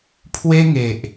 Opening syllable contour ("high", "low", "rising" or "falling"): high